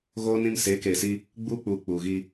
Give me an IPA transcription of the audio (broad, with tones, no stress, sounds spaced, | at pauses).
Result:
ɣ oː˦ n ĩ˦ m s eː˨˦ k eː˨ s iː˦ | ɡ͡b uː˦ k͡p uː˨ k͡p uː˨ ɣ iː˦